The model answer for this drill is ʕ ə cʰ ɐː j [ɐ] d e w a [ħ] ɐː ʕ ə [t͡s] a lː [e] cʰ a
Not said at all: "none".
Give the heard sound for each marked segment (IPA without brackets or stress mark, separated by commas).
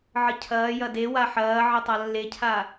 ɐ, ħ, tˤ, e